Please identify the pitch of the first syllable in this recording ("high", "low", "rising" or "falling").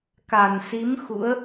low